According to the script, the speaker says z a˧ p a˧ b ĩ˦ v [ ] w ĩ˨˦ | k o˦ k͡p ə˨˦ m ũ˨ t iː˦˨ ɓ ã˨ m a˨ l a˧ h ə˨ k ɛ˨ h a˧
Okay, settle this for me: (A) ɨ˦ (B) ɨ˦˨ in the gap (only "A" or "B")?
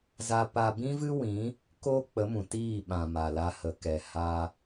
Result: A